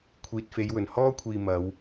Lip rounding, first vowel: unrounded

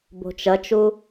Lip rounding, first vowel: rounded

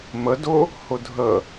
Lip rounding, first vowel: unrounded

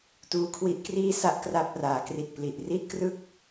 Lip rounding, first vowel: rounded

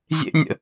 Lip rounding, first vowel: unrounded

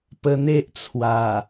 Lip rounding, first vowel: unrounded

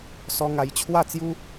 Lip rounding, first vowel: rounded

